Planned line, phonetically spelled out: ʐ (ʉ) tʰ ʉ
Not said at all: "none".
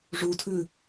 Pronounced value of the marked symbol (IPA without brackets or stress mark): u